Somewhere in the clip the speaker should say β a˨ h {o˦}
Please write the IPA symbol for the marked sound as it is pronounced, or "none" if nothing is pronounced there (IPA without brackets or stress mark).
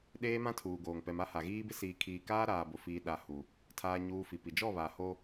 o˦